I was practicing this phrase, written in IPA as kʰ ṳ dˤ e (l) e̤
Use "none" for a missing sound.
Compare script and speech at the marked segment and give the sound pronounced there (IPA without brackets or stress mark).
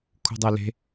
l